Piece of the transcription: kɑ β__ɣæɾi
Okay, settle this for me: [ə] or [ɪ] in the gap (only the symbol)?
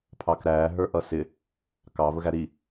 ə